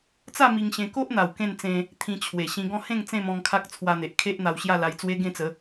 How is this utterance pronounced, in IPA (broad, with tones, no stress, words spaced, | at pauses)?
t͡sa˥˧ mi˧ŋɕẽ˧ ko˦ʔ n̪a˨˩w kẽ˥˧nt͡sẽ˧ | t̪ʰĩ˧t͡ɕʰwe˨˩ ɕĩ˧ɡɔ̃˥˧ hẽ˥˧ŋ t͡sẽ˥˧mɔ̃˧ŋ kʰa˦k̚t͡sʰwa˧n̪e˨ʔ kʰe˦ʔn̪a˧wɕja˥˧ la˧jt͡swe˦ɡẽ˥˧t͡sə˨˦